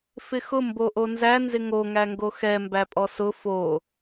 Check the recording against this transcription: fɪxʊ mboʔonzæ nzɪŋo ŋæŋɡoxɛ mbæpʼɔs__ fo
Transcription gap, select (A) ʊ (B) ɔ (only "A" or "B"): A